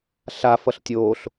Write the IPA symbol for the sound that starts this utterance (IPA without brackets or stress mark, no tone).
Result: ɬ